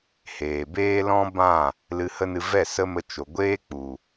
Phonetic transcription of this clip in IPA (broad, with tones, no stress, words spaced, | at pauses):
heː˨ beː˦lɔ̃˦bã˦˨ | lɨ˧hə˦nɨ˧ vɛ˦˨ sə˦mə˧t͡ʃo˨ ɡʷeː˦ k͡pu˨